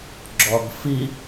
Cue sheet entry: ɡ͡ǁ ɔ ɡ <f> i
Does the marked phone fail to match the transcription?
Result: no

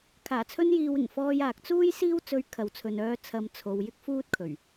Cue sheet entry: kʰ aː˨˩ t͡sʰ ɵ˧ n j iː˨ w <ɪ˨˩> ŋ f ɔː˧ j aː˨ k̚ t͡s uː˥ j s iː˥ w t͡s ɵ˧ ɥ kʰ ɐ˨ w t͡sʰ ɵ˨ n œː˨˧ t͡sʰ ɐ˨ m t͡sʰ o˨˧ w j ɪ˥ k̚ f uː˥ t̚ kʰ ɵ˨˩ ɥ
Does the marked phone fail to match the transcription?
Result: no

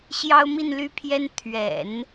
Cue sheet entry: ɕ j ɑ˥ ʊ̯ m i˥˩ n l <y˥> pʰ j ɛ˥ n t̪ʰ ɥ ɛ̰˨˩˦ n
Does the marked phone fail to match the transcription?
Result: no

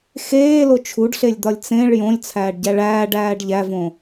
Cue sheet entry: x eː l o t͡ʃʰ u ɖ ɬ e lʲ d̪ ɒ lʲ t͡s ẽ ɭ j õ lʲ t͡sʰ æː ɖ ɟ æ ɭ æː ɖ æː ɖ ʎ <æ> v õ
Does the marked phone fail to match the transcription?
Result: no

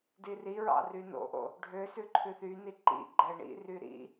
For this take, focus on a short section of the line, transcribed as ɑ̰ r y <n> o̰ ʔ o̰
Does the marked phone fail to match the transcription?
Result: no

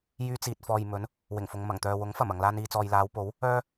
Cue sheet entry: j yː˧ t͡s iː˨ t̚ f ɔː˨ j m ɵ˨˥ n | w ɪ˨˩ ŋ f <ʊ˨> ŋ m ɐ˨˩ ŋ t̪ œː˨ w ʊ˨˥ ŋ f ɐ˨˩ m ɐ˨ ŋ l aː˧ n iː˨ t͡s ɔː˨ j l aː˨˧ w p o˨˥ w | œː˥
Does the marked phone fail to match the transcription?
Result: no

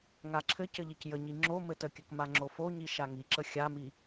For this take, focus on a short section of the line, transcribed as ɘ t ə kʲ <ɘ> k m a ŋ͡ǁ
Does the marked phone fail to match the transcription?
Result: no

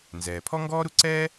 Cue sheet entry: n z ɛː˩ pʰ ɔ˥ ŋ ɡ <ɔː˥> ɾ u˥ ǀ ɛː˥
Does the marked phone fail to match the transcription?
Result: no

